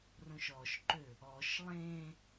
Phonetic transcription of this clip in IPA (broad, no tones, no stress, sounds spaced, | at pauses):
r õ ʃ ɔ ʃ ǃ ø | ɔ ʃ lˠ ẽ